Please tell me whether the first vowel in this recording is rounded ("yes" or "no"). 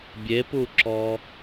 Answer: no